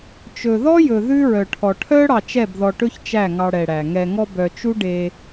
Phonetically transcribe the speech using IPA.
t͡ʃ ɵ˨ ð ɔ˦ j ɵ˨ ð ʉ˦ ɹ œ˨ ʈʰ ɔ˨ ʈʰ œ˦ ɽ ɑ˧ t͡ʃ ɛ˦˨ b ð ɔ˧ ʈ ɵ˦ ç t͡ʃ æ˦˨ ŋ ɑ˧ ɽ ɛ˨ ɽ æ˨ ŋ ɛ˨ ŋ ɔ˧ b œ˨ t͡ʃ u˦ ɖ e˧

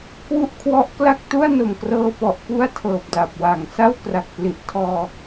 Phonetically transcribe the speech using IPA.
k w u˦˥ ʔ kʰ w ɔ˦˥ ʔ k l a˥˩ k̚ t u˥˩ a̯ n o˨˩ m k r ɤː˧ p ɔ˨˩ ʔ p u˥˩ a̯ tʰ ɤː˨˩ p̚ d a˨˩ p̚ w a˨˩ ŋ s a˥˩ w k r a˨˩ k̚ p l i˨˩ ʔ tʰ ɔː˧

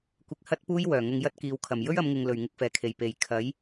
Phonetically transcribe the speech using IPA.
kʷ ɪ˧ k̚ h ɐ˥ t̚ p uː˥ j w œː˨˩ ŋ ʊ˧ ŋ j ɐ˥ t̚ k iː˨˧ w kʰ ɐ˨˩ m j ɵ˥ ɥ ɐ˨˧ m ŋ ɪ˨ ŋ l ɵ˨˩ ɥ ŋ ɪ˧ k̚ f ɛː˨˩ kʰ e˨˩ j p e˨˩ j kʰ ɐ˨˥ j

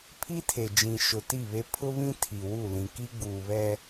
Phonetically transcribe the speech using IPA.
pʰ i˦ tʰ e˨ d͡ʒ ĩ˨ ʃ ʊ˨ t i˦˨ β e˦ pʰ ʊ˦ β ĩ˦ tʰ i˨ w u˦˨ l ĩ˨ k i˦ ɡ͡b uː˨ β ɛ˦

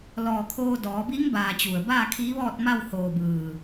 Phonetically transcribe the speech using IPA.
l ɔː˧˩ kʰ oː˧ d ɔː˩˧ b i˧˥ ŋ b aː˧˩ t͡ɕ u˩ ə̯ b aː˥˨ kʰ iː˧˥ ʋ ɔː˥˨ t̚ m a˥˨ w h oː˧˩ b ɯː˧˩

